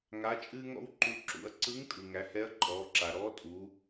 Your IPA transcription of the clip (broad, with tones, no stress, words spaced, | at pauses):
ŋa˧˥t͡ʃʼɨː˥ŋɔ̰˥w ǃu˧ ǁṵ˩˧ɐ̯ǀɯ˧˥ŋtʼɯ˩ ŋæ˩˧hɛ˧˥ɐ̯ǃʼɔː˩˧ǁa˩ ɾɔː˧˥tʼu˩˧